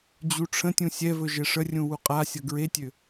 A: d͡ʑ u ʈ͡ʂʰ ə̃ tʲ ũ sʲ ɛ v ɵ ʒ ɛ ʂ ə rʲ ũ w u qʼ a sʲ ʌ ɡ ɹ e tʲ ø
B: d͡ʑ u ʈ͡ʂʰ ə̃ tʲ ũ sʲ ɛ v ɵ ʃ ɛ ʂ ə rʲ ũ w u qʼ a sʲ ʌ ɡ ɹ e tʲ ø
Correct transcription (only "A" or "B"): A